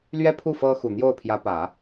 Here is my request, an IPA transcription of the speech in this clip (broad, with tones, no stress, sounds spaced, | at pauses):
l ɥ ɛ˥ pʰ u˥˩ f ɤ˥ x u˨˩ n̪ j o˥˩ ʊ̯ pʰ j ä˧˥ p ä˨˩˦